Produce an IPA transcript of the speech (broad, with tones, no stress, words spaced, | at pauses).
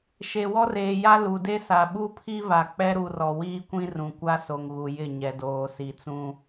ʃe˨wɔ˦reː˨ja˦ lu˨de˦sa˨ ɓu˦pʰi˦va˨ k͡pɛ˦ɾu˨rɔ˨ wiː˦kʷĩ˦ rũ˨kʷa˦so˨ŋ ɣu˨jɪ˦˨ ɲɛ˨doː˨si˨t͡sũ˦